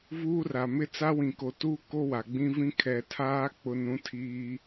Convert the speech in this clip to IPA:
v uː˦ r a˨ m ɪ˦ t͡s a˦ w ĩ˨ k o˨ t uː˦ k o˦ w a˨ ɡ͡b ĩ˦ v ĩ˦ kʰ ɛ˨ tʰ aː˦ k͡p ʊ˦ n ũ˦ tʰ iː˦

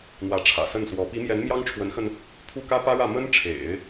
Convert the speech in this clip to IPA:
n̪ w ä˧˥ ʈ͡ʂʰ ä̰˨˩ s ə˥˩ n s w ɔ˧˥ p i˧˥ m j ɛ˧˥ n m j ɑ˥ ŋ ʈ͡ʂʰ w ə˧˥ n x ə˧ n | pʰ u˥˩ k ä˥ p ä˥ ɻ ä˥˩ m ə˥ n ʈ͡ʂʰ ḛ˨˩˦ ɪ̯

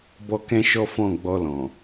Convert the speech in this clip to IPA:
b ɔ˧ k ɛ̃˧ ʃ ɔ˦ f ɔ̃˦˨ ɡ͡b ɔ˧ l ɔ̃˨

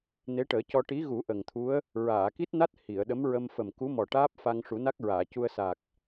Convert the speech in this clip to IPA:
n e˧˥ ʈ əː˨˩˦ c ɔ˧ ʈ i˧˥ ɣ u˨˩˦ ʔ ə˨˩ ŋ t̪ʰ u˧˥ ə̯ | ɹ aː˨˩˨ k i˦˥ t̚ n a˦˥ t̚ h i˨˩˨ ə̯ ɗ ə˧˥ m ɹ ə˧ m f ə˨˩ m k u˧˥ m ɔ˨˩ ʈ aː˦˥ p̚ f a˧ ŋ ʂ u˨˩˦ n a˦˥ k̚ ɹ aː˨˩˨ c u˧ ə̯ s a˨˩ k̚

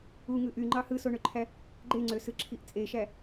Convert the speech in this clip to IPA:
u ŋ ɯ ʔ y ŋ͡ǃ ɑ h ɯ s o ɳ ø ǃʰ æ | ɡ͡ǃ e ŋ͡ǀ ø s ɯ ǁʰ i ʔ t͡sʼ e ʃ æ

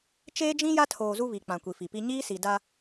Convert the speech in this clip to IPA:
t͡ʃ eː˦ d͡ʒ ĩ˦ j a˦ tʰ oː˨ z u˦ β i˨ k͡p ã˨ kʷ i˨ f i˨ p i˦ ɲ iː˦ s i˨ d a˦

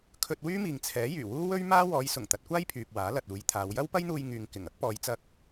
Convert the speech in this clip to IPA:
kʰ ɵ˧ t̚ w yː˥ m iː˨ ŋ t͡sʰ ɛː˨˥ j yː˨˩ w uː˥ w ɵ˥ ɥ m aː˥ w ɔː˨˧ j s ʊ˨˩ ŋ t̪ ɐ˨˥ t̚ kʷ aː˥ j pʰ yː˨ p̚ w aː˨˥ l ɐ˨ t̚ uː˨˧ j t̪ʰ aː˨˧ w j ɐ˥ w p ɐ˥ j n̪ uː˧ j ŋ yː˨ ŋ k ɪ˨˩ ŋ ɐ˨˥ k̚ p ɔː˨˧ j t͡s ɐ˧ k̚

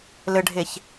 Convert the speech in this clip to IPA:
l ɘ ɖʱ e ç

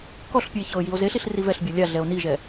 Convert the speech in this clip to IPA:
k ɔ ɬ pʲ ɨ e̯ ç ɤː j i o̯ z e ɬ i ɬ r i v ɛ ɬ bʲ ɤ lʲ a ɮ ɛ o̯ n i ʒ ɛ

